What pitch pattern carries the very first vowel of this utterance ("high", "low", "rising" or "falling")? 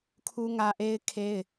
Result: high